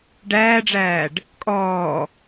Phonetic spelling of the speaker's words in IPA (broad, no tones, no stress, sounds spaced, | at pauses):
ɖ æː ɖ͡ʐ æː ɖ | kʼ ɔː